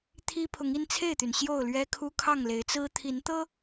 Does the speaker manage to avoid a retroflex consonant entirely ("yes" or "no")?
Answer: yes